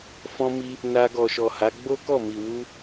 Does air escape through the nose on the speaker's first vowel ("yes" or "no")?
yes